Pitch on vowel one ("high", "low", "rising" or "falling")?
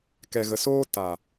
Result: low